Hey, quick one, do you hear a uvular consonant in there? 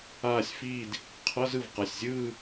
yes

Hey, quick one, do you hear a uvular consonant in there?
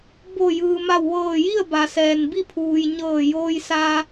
no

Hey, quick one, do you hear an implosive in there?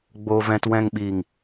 yes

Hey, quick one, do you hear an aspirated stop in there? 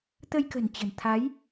yes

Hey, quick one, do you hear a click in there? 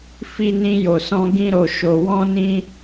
no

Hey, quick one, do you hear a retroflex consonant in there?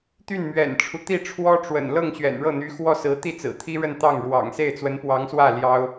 yes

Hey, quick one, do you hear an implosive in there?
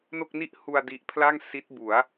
no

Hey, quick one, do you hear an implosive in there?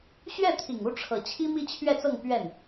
no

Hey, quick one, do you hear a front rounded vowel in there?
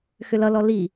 yes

